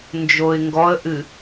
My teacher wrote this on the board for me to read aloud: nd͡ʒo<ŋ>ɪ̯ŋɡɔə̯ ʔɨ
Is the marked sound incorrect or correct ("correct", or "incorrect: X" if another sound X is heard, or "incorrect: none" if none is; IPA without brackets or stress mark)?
incorrect: none